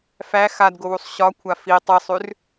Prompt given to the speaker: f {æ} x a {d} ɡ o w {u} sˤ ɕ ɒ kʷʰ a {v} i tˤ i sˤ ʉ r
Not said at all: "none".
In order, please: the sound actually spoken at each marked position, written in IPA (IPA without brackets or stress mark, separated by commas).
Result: æ, d, u, f